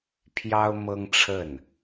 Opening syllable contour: high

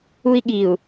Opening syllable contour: high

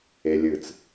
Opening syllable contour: low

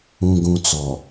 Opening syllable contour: low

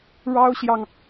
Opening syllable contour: high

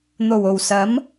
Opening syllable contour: low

